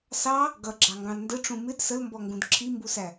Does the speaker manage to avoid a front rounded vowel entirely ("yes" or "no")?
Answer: yes